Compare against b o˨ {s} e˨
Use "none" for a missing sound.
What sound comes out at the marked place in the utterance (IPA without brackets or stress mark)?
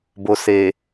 s